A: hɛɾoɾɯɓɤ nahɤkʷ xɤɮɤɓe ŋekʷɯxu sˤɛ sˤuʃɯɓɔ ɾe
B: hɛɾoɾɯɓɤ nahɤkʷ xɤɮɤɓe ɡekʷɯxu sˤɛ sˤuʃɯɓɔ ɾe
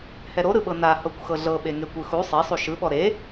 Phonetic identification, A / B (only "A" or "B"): A